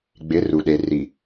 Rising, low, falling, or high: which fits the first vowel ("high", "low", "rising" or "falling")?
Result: rising